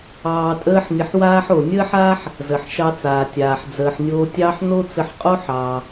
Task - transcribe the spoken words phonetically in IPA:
ɑː˧tʼəː˥ħnʲə˧ħwaː˥ħ o˩nʲəː˥ħa˥ħ | zə˩ħʃɑ˧t͡saː˩tʲaː˩ħ d͡zəː˩ħnʲoː˧tʲɑː˥ħ no˥t͡sə˧ħqʼo˥ħ ɑ˩

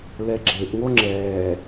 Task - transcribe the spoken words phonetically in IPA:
lɛɡ͡ǁeʔŋo ŋ͡ǁɛː

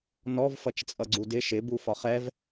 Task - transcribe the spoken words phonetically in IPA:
nɔv fʌt͡ʃt͡sʼʌɡ͡ǀudɪ ʃɪbu fɒχɛv

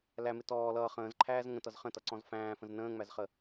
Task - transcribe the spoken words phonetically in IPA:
læmɪ tɔː lʌː χə̃ːzǃʰæːz ŋə̃tʌz χə̃tʌǀɔ̃z fæ̃ːfə̃z nə̃ːŋ͡mæzχə

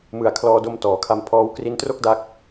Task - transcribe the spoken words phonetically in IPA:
mɯ˨˩a̯kʰlɔː˧do˧m tɔː˩˦kʰa˧mpʰɔː˦˥w kri˧ntro˥˩k̚da˦˥k̚

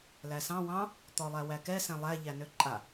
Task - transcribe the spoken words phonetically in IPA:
læsɑ̃ wɑ̃ | t̪ɔlˠæwækɛ sɛ̃lˠæ ʎænøǃʼa

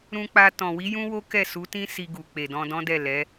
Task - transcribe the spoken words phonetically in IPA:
ɾũ˧k͡pa˧ tɔ̃˨wi˨˦jũ˦ wo˦kɛ˦˨su˨˦tĩ˦ si˧ɡu˨ k͡pe˨dɔ̃˧dɔ̃˦dɛ˦˨ lɛ˨˦

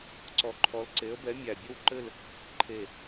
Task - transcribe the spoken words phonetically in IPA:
ǀɔ˨˦ǃʰɔ˨˦l ǀe˨˦ə̯bɛ˨˦ mʲæ˨˩bʲɘ˥˧wǃɘ˥˧l | ǃʰe˨˩

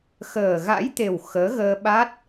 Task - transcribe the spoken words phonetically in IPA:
xəː˨˩ɣa̰˧˥jt̪e˨˩w xəː˨˦ɣəː˧ɓa˦˥t̚

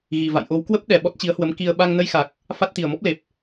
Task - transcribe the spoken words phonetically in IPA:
ɣi˨˩ va̰˧˨jʔo˨˦wkwə˦˥p̚ ɗɛ˨˩ ɓɔ˦˥t̚t͡ɕi˨˦ə̯hwə˨˦m ki˧ə̯ ɓa˧ŋnə˧jxa˨˩k̚ | fa˦˥t̚t̪i˨˩ə̯mɔ˦˥p̚le˨˩p̚

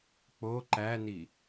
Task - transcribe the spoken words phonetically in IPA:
k͡po ǃæni

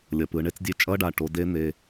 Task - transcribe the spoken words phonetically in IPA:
lʲʌ˩˧˩ pɯ˩˧ɳe˧˥˧t͡sdʲe˧˥˧ t͡ʃʼʌ˧˥˧ɖa˩˧˩ ʈo˦˥ de˦˥n̪e˩˧˩

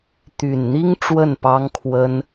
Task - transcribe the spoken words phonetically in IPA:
t̪y˨˩nn̪i˦ŋ ʈ͡ʂwə˥˨npɑ˦ŋkʰwə˦n

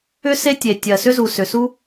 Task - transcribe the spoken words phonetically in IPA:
ʏ˥ se˥tʲe˩ tʲɜ˩sʏ˥zu˩sʏ˩ su˥

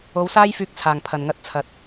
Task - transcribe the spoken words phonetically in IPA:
o˨˥wsaː˥j fyː˧k̚t͡sʰaː˨˩ŋpʰɐ˨˩nŋɐ˧t̚ t͡sʰɐ˨˥t̚

